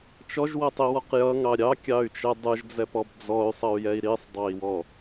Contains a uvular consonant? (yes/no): yes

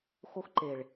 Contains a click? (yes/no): yes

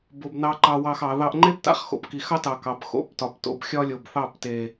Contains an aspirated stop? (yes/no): no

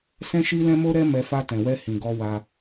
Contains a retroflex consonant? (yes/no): no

